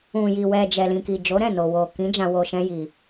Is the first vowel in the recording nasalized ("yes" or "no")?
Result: yes